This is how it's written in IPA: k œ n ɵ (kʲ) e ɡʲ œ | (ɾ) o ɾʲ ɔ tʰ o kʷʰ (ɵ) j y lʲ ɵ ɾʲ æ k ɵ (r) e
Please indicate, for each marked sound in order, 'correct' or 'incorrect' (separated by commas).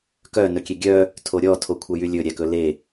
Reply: correct, incorrect, incorrect, incorrect